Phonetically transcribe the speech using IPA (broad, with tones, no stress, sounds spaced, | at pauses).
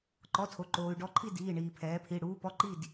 ǃ ɔ˩˧˩ tʰ o˩ ǃ oː˩ y̯ ɖ ɔ˩˧ ǃʰ i˧˩ d iː˩˧˩ ɳ iː˩ pʰ ɛː˩˧ pʰ i˩˧˩ ɽ uː˩˧ p ɔ˩˧˩ ǃ i˧˩ d